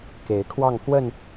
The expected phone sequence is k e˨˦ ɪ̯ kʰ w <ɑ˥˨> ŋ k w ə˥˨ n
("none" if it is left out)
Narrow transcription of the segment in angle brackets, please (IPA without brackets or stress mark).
ɑ˥˨